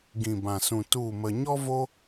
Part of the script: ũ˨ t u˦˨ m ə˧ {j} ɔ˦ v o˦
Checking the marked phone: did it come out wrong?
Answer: yes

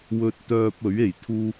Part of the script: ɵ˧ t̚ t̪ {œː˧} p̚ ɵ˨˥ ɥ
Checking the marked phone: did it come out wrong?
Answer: no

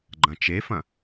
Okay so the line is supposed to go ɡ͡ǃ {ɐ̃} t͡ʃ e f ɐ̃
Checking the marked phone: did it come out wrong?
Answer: no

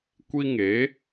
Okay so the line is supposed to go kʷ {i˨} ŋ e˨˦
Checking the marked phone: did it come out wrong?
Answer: yes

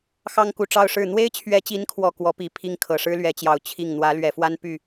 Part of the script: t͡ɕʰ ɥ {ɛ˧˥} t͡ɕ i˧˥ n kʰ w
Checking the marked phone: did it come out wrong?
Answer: no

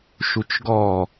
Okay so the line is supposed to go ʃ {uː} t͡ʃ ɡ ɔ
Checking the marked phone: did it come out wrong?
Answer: yes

